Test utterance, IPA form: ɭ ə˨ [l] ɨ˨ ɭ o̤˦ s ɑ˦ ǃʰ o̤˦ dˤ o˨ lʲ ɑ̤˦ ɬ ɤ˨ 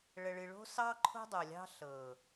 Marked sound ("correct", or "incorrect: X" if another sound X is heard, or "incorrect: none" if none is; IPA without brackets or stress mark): incorrect: ɭ